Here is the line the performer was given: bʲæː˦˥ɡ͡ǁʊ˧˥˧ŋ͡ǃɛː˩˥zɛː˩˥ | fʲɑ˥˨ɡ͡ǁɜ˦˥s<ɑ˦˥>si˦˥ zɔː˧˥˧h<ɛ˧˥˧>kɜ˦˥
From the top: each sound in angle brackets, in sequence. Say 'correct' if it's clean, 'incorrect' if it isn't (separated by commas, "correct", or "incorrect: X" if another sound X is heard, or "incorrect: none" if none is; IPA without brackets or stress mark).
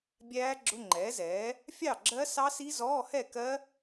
correct, incorrect: ɛ˥˨